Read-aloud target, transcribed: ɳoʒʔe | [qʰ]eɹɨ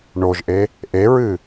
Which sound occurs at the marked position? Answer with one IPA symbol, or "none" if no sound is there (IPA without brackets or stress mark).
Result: ʔ